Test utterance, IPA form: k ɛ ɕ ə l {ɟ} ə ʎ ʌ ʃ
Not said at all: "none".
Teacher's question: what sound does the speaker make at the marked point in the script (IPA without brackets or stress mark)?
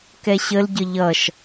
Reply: ɟ